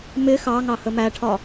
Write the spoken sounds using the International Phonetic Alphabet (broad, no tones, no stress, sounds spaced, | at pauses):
m ɪ x ɑ ŋ ɑ h ə m æ ʈʰ ɒ